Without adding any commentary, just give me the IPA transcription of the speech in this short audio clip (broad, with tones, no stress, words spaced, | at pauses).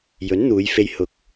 jɵ˨˥nn̪uː˨˧jfe˧j hʊ˨k̚